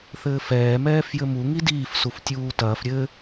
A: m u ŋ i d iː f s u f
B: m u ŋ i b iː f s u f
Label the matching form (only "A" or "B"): A